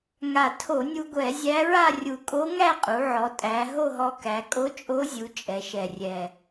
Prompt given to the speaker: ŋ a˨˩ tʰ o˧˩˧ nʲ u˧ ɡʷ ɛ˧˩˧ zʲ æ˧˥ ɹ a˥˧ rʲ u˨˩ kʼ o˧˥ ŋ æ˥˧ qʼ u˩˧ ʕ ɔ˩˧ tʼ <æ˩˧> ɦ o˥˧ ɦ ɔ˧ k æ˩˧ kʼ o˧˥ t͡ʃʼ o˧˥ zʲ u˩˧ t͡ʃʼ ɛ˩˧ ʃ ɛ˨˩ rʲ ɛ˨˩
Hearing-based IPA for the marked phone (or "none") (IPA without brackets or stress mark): æ˩˧